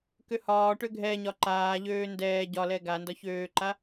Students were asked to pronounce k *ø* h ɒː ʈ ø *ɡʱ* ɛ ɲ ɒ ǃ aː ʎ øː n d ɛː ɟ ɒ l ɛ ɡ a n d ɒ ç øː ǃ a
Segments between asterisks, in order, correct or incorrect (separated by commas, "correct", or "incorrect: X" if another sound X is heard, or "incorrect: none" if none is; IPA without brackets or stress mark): correct, correct